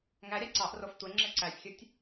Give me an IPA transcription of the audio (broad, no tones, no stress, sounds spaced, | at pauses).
ŋ æ ɾʲ ɑ ǀ ɑ ʔ r o f tʷ e ŋ͡ǁ e ǀ æ sʲ xʲ u tʲ